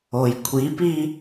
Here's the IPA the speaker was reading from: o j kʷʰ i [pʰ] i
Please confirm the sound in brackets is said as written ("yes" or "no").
no